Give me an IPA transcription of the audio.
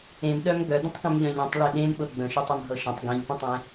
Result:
ẽ m ɗ œ m ɡ œ d ə̃ tˤ k œ̃ m ʎ œ̃ ʎ œ̃ tˤ ɭ e ɗ ẽ m ɓ ɤ ɡ͡b ə̃ ʃ œ tˤ ə m ɦ ɤ ʃ ə̃ tˤ ɡ ĩ ʎ p ə̃ tˤ ẽ

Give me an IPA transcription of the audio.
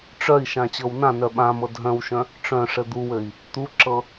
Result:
ʈ͡ʂ œ i̯ ʃ ã t͡ɕ ɤ w n ã n œ ɓ ã m ɤ dʱ œ̃ w ʃ œ̃ | ʈ͡ʂ œ̃ ʂ ɘ d̪ u w ɘ i̯ | t̪ u ǁ ɤ

